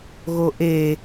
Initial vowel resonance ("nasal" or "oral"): oral